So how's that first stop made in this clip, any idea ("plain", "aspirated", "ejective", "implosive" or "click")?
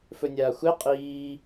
ejective